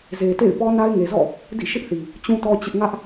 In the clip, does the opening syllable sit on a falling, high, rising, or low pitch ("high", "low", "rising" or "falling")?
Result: low